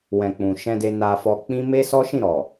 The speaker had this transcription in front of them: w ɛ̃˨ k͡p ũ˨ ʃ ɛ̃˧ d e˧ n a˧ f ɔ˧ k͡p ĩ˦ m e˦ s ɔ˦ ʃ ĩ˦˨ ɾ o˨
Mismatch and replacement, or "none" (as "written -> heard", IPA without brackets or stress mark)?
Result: o˨ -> ɔ˨